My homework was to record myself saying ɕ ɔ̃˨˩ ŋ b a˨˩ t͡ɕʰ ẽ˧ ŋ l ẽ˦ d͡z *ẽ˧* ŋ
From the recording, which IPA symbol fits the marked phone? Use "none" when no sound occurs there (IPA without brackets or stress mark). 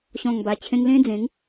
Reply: ẽ˨˦